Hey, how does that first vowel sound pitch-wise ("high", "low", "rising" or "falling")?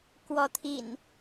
rising